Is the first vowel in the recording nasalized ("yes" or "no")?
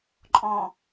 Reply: yes